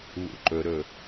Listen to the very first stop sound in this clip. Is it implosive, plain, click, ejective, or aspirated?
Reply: click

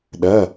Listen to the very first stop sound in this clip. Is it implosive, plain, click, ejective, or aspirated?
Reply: implosive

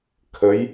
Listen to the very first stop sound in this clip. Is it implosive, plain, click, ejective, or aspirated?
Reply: aspirated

